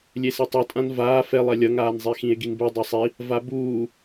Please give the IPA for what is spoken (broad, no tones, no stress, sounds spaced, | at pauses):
lʲ e s e tˤ ɯ tʼ ã n v aː f ɛ lˠ ɛ lʲ ʌ ŋ aː n zˤ e x ĩ e̯ ɡ i n b e dˤ ɛ sˤ i | v a b uː